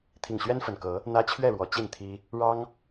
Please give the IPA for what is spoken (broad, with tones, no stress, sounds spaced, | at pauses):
t̪ʰ i˨˩ ŋ ɕ ɥ ɛ˦ n f ə˨˩ n k ɤ˨˦ | n̪ ä˦ t͡ɕʰ ɥ ɛ˥˨ ɻ w ɔ˨˩ t͡ɕ i˥˨ n t̪ʰ i˦ | ɻ ɑ˦ ŋ